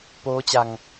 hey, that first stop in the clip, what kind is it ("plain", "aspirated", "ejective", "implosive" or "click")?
plain